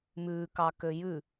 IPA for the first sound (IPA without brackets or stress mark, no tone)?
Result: m